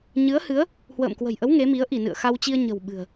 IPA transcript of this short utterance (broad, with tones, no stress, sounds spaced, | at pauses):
ɲ ɨ˨˦ ə̯ h ɨ˨˦ ə̯ | h w ə̰ː˧˨ m k w ə̤˨˩ j ʔ ə˨˦ w ŋ e˨˦ m i˨˦ ə̯ ʔ i˧˩ n ɨ̰˧˨ ə̯ x a˧ w t͡ɕ i˧ ə̯ ɲ ə̤˨˩ w ɓ ɨ̤˨˩ ə̯